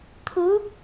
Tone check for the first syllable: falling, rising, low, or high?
rising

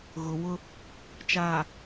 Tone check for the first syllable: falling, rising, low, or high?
low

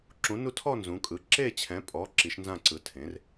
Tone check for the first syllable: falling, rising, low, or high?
rising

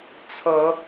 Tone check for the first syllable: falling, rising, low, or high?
rising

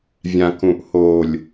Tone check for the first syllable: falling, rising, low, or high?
low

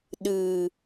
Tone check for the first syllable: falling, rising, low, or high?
low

